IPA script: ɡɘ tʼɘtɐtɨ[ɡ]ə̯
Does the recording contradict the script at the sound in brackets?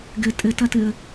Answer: yes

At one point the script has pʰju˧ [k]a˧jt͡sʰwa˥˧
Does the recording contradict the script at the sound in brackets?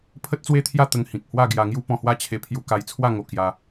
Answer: no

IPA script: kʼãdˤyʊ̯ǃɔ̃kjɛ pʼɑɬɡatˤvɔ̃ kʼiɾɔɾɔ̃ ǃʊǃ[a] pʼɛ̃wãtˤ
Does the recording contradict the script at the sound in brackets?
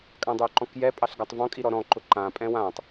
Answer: yes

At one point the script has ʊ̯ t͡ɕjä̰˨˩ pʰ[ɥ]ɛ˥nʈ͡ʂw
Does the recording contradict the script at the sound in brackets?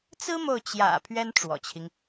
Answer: no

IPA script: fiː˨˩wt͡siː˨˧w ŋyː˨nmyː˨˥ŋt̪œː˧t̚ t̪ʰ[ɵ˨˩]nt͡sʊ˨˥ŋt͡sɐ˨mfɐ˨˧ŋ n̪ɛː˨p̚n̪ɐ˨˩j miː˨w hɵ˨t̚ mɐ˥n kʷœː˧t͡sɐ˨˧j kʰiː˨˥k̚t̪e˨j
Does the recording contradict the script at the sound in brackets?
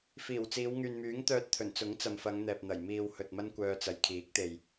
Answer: no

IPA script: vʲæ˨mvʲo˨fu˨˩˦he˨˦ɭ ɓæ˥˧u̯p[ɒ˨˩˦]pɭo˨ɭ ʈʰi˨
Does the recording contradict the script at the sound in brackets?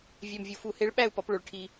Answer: yes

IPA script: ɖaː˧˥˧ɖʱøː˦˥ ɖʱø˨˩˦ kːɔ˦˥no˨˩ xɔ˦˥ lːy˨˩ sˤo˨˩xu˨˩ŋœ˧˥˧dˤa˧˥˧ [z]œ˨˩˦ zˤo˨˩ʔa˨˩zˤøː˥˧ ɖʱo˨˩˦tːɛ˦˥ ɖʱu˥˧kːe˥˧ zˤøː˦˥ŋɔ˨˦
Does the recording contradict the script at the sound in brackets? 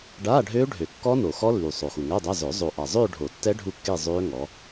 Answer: no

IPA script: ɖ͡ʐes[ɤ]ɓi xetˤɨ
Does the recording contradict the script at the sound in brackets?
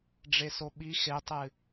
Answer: yes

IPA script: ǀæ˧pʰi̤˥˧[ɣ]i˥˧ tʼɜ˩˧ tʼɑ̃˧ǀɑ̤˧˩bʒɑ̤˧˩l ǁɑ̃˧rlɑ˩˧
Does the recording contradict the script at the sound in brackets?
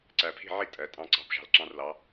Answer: yes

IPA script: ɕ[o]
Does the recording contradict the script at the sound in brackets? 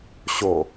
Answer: no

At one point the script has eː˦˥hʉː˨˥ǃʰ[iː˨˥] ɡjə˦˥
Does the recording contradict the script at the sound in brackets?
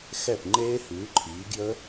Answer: no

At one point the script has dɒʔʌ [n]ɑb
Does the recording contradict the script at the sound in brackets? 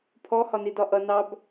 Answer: no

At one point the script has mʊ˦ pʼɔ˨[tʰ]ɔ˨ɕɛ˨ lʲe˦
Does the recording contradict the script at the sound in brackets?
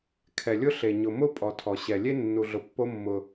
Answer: no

